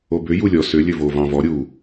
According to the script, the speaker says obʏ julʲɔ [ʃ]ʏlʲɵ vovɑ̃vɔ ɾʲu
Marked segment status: incorrect: s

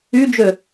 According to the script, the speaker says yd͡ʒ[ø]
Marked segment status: correct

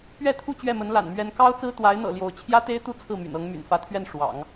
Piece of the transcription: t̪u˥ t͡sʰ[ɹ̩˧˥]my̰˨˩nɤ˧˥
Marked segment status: incorrect: ɹ̩˥˩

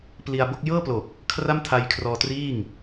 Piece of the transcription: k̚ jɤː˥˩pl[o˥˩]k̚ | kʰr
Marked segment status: incorrect: o˨˩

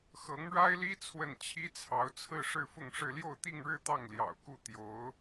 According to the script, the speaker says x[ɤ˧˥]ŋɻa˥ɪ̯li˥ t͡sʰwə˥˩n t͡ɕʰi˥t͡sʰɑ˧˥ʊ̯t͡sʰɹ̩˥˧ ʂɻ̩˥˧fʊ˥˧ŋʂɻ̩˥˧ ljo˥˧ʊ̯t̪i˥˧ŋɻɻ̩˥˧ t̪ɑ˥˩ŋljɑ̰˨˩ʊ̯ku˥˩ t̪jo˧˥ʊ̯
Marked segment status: correct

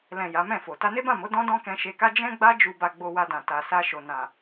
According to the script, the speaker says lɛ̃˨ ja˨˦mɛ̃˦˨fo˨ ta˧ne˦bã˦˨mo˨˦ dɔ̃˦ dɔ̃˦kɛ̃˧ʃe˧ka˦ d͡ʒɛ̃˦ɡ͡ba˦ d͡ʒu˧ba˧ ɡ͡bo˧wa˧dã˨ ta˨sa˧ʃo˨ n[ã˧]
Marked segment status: incorrect: ã˨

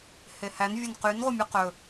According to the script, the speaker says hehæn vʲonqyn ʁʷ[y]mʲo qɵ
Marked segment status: incorrect: e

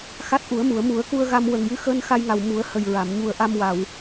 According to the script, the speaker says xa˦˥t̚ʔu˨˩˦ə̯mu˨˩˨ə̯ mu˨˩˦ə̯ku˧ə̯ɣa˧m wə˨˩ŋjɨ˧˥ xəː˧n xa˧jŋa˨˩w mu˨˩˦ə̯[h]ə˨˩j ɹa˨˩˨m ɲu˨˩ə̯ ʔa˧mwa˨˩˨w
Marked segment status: correct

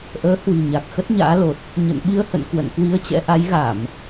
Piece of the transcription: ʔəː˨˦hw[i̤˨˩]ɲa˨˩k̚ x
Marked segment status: correct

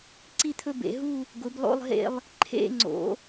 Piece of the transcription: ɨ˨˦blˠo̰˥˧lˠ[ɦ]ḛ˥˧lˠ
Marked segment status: correct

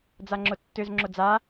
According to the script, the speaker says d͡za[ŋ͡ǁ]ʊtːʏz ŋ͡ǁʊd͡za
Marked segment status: correct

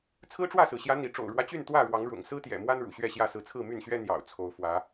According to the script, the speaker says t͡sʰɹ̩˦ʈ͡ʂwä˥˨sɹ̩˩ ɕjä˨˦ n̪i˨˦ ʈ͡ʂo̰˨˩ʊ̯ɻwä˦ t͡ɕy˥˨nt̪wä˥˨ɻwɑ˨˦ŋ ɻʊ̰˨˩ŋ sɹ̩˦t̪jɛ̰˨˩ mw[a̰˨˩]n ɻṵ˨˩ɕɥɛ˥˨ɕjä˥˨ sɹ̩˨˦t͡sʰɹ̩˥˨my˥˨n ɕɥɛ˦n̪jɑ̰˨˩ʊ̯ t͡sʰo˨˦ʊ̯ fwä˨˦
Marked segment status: incorrect: a˦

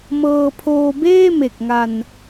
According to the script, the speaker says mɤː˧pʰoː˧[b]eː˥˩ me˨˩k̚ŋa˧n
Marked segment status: correct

